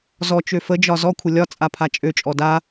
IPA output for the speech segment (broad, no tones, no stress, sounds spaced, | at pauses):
z ɔ t͡ʃ ø f ə d͡ʒ ɒ z ɔ kʷʰ ə lʲ ɒ t͡sʼ a pʰ a t͡ʃʼ ø t͡ʃʼ ɔ d a